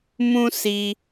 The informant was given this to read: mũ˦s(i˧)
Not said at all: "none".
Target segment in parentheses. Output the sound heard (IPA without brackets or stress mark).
i˧